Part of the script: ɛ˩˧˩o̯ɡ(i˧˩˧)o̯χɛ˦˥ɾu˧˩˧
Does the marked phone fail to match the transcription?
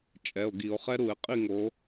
no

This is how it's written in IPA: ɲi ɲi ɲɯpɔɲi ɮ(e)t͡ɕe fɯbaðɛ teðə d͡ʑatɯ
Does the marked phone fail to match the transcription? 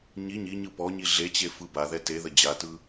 no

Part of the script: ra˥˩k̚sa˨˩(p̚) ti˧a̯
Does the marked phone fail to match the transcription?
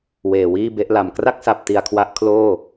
no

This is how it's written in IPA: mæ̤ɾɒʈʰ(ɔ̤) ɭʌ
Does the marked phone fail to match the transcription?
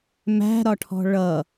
no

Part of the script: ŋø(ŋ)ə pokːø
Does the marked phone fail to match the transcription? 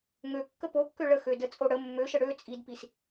yes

